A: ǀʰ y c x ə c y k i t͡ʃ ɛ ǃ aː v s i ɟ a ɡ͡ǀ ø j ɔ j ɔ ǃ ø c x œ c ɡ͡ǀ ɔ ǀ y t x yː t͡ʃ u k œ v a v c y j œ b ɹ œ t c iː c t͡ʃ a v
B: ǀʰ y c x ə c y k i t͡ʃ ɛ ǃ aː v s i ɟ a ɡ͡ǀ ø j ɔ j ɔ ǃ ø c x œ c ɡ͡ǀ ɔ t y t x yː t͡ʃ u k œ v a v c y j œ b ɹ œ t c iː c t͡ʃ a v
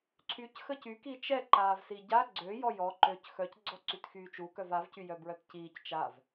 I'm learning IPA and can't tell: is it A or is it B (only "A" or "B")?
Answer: A